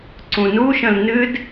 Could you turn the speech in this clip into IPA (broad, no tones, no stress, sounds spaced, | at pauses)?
ǀ ũ n u ʃ ə̃ l n ɨ d